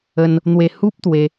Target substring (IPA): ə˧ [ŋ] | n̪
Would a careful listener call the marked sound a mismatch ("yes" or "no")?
yes